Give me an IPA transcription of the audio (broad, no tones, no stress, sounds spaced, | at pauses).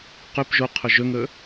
q ɵ p ʒ o qʰ ɵ ʒ ɵ ŋ ɵ